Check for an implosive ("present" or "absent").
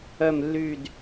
absent